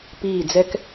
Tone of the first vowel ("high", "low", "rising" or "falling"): falling